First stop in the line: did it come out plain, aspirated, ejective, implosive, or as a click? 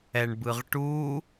plain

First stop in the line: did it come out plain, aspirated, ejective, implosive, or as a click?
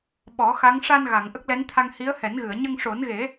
implosive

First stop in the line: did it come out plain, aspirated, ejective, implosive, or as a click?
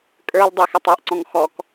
ejective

